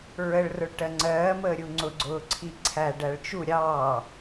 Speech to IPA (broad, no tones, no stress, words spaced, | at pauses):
ɹəɭ rʊɭʈɜŋ͡ǀɜː məːɾʲuŋ͡ǀʊ ɡ͡ǀʊːǀʰiǀʰæ ɖæɭt͡ʃu ɾʲɑː